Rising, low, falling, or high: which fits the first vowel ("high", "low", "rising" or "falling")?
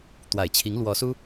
low